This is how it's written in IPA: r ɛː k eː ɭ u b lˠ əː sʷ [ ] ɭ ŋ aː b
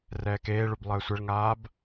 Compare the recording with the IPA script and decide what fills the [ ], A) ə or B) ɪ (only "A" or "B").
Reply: A